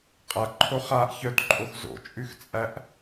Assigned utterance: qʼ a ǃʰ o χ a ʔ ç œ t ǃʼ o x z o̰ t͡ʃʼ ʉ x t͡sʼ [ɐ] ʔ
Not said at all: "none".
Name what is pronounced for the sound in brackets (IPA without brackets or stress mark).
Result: æ